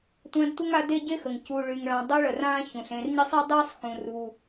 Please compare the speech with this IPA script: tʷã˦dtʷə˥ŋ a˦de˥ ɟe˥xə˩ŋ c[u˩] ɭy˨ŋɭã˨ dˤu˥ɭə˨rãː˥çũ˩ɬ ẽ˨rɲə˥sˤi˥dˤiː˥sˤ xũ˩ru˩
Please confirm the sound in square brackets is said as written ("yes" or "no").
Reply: no